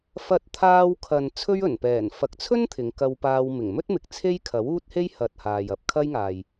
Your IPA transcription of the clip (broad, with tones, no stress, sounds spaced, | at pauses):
f ɐ˧ t̚ t̪ʰ aː˧ w kʰ ɐ˨ n t͡sʰ ɵ˥ ɥ ɵ˨˩ n p ɛː˨˩ n f ɐ˨ k̚ t͡sʰ ɵ˥ n t̪ʰ ɪ˨˧ ŋ k ɐ˧ w p aː˧ w m ɪ˨˩ ŋ m ɵ˥ t̚ m ɪ˨ k̚ t͡sʰ e˥ j kʰ ɐ˨˥ w uː˥ t̚ h e˥ j h ɐ˨ t̚ h aː˨ j ɐ˧ p̚ kʰ ɐ˥ j ŋ aː˨ j